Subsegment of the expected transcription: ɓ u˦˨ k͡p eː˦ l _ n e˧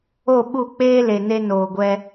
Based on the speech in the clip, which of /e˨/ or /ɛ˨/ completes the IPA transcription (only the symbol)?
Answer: e˨